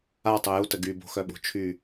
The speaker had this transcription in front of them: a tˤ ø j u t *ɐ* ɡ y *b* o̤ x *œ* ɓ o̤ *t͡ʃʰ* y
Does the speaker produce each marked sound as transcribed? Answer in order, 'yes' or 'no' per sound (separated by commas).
no, yes, yes, yes